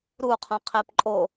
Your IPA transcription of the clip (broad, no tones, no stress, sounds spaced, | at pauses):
ɾ u qʰ õ qʰ e p ǃʼ o